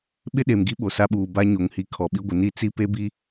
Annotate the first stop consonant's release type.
implosive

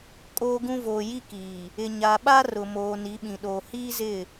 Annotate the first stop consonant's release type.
ejective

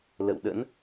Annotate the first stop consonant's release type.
implosive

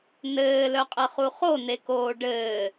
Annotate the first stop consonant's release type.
ejective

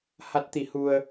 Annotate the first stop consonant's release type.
plain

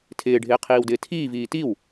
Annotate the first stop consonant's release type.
aspirated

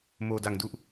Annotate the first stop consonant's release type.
plain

